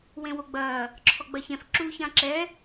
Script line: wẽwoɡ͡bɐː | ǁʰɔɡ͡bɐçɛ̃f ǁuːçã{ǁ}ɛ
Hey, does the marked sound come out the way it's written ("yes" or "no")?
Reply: yes